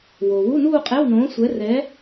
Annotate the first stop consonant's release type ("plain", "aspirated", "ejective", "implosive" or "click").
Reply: ejective